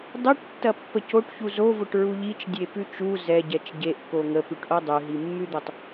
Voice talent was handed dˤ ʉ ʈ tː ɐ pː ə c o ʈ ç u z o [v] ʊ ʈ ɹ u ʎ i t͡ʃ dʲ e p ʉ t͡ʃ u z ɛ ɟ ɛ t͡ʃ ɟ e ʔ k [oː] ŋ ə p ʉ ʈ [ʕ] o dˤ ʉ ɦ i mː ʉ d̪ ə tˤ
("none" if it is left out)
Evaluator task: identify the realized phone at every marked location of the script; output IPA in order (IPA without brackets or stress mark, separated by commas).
v, o, ʔ